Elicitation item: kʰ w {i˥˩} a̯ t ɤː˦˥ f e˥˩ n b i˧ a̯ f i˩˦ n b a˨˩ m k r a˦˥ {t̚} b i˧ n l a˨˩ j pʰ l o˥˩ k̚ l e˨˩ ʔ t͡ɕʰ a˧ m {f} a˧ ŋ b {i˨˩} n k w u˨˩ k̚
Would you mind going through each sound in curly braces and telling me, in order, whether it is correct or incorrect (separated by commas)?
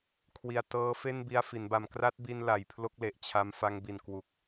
incorrect, correct, correct, correct